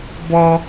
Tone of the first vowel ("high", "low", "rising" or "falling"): low